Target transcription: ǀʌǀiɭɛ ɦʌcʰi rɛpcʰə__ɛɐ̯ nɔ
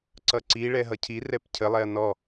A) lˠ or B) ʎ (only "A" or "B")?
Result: A